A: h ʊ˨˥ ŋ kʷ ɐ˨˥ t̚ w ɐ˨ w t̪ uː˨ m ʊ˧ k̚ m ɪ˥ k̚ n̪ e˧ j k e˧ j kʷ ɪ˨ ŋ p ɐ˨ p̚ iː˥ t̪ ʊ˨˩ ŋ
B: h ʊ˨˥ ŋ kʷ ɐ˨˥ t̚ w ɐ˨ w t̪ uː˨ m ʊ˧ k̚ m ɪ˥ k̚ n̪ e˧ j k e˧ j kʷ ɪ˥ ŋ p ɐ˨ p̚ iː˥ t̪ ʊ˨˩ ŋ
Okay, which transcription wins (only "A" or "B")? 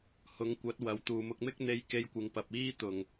A